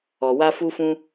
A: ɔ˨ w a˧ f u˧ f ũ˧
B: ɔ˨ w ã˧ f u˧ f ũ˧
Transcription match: A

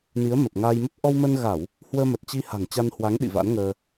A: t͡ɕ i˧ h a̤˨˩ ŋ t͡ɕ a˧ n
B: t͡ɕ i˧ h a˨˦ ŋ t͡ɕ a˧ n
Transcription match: A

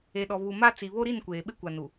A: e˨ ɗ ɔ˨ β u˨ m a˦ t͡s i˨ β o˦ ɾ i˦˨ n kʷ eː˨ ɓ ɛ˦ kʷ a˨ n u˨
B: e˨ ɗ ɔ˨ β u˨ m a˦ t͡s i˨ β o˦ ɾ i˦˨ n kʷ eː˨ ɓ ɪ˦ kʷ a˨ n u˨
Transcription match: B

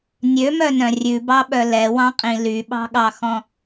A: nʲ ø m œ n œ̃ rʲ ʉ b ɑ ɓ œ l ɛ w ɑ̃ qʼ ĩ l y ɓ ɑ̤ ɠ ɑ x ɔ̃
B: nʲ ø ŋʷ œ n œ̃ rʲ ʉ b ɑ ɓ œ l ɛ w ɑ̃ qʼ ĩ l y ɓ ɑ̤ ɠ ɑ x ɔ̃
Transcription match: A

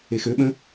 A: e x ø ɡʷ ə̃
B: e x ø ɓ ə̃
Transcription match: B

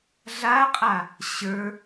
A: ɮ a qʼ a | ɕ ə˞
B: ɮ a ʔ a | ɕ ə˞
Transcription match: A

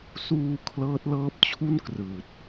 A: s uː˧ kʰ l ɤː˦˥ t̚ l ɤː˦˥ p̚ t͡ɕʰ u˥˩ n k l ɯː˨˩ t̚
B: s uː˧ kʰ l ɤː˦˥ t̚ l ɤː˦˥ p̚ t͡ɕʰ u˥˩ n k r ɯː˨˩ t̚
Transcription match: B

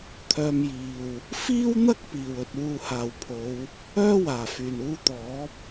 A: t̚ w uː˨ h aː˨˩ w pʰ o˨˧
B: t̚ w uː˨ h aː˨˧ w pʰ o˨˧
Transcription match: A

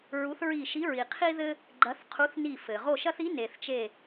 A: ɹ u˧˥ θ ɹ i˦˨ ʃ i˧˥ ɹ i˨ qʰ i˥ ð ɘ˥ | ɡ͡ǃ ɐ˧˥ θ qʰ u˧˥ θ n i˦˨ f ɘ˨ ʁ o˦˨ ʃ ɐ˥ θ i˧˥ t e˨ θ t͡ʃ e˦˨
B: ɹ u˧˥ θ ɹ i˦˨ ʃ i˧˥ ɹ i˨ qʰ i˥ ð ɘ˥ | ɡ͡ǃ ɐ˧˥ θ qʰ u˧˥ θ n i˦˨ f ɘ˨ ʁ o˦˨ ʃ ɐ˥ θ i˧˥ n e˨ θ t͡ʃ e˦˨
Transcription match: B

